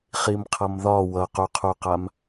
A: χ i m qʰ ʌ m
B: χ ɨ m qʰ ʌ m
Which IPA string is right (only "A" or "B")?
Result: A